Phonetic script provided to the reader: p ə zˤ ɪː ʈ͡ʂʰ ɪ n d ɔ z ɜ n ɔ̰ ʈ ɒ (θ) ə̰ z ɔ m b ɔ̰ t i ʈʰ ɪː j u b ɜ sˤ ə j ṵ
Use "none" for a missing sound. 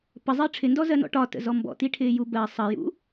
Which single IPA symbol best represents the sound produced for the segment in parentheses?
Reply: t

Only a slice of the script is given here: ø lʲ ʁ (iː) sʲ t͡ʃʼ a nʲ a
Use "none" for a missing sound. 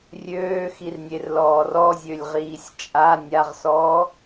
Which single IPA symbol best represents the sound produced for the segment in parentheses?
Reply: iː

